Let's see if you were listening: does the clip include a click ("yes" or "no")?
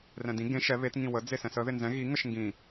no